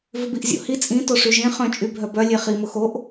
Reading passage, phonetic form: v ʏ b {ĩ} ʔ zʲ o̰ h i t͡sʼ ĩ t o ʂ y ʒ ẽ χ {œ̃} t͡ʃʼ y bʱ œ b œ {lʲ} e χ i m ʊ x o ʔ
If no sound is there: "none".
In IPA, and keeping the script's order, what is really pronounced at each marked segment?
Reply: i, œ̃, lʲ

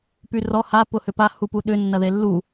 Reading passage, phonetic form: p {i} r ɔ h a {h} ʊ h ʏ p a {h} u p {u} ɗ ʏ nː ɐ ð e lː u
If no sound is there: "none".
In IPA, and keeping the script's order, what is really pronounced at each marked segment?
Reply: y, p, h, u

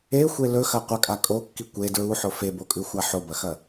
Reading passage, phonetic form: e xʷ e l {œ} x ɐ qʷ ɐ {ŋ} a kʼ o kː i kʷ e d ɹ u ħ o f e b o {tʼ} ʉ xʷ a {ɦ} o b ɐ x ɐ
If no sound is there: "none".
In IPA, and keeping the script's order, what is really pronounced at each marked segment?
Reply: ɵ, kʼ, kʼ, ħ

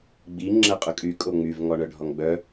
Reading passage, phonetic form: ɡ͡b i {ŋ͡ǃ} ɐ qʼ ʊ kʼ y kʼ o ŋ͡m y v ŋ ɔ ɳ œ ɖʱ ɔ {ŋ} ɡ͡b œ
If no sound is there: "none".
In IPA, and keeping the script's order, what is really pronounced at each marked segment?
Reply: ŋ͡ǁ, ŋ

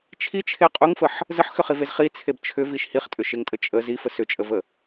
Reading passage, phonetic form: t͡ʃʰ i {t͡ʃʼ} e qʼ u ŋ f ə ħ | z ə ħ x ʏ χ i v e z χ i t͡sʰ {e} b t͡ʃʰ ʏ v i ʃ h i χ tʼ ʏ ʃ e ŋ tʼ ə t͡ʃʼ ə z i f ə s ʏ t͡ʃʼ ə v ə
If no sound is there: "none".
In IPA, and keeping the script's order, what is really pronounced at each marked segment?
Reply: t͡ʃʰ, e

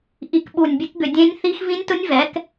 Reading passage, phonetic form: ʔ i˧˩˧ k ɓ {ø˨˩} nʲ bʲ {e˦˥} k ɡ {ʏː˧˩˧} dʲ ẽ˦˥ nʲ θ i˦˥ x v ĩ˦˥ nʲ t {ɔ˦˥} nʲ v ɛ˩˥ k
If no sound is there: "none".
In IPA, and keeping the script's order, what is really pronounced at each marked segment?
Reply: u˨˩, e˦˥, ʏ˧˩˧, ʊ˦˥

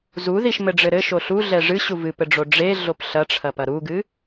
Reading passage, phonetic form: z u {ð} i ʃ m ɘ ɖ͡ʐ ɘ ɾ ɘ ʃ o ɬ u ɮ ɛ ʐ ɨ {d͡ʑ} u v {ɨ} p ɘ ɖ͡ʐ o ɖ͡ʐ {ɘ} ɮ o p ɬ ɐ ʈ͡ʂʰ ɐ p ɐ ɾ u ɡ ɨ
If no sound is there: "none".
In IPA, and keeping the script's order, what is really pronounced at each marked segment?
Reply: ð, ɕ, ɨ, e

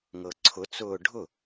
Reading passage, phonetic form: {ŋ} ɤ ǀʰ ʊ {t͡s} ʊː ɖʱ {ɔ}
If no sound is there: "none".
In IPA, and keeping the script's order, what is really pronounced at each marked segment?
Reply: ŋ, t͡s, ʊ

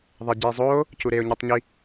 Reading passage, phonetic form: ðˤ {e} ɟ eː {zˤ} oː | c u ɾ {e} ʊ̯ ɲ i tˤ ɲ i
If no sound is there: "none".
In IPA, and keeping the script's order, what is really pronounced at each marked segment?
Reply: ɛ, zˤ, e

